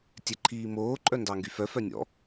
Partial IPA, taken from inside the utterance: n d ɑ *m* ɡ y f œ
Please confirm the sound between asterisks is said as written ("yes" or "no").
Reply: no